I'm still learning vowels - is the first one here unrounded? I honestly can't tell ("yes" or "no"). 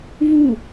no